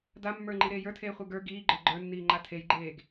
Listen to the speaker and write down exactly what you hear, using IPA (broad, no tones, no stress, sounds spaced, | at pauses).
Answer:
d a mː ə˞ ŋ͡ǃ i ɾ eː j ə˞ tʰ eː χʷ ə˞ ɡ ə˞ ɡ iː ɡ͡ǃ ə˞ ɡ͡ǃ ə˞ nː iː ŋ͡ǃ a tʰ e j ɡ͡ǃ eː ɡ